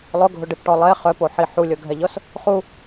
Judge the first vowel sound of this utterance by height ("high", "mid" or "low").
high